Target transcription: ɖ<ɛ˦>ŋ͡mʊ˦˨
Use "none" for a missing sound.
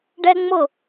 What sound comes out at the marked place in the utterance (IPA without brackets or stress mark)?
ɛ˦